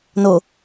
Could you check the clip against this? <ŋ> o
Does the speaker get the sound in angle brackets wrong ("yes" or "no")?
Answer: yes